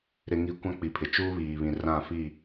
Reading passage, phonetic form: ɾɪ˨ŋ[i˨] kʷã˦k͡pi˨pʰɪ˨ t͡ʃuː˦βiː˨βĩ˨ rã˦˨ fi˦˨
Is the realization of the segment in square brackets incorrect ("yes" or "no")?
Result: no